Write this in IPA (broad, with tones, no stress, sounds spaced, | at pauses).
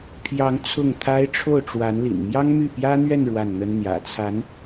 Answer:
pʰ j ɑ˧˥ ŋ t͡sʰ ʊ˥˩ ŋ t̪ʰ a˥ ɪ̯ ʈ͡ʂʰ o˥˩ ʊ̯ ʈ͡ʂ w a˧˥ n l ḭ˨˩ n m j ɑ˥ ŋ m y˥˩ p j ä˥ n̪ ɥ ɛ˥˧ n ɻ w a˥˩ n n̪ ə˥ n n̪ j ä̰˨˩ t͡sʰ a˧˥ n